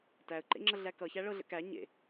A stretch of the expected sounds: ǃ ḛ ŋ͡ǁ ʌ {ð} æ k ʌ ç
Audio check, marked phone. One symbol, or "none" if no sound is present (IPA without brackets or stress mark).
ɮ